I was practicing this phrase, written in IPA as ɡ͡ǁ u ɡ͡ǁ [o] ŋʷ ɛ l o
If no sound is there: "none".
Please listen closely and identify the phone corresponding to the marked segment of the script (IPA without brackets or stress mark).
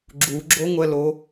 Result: o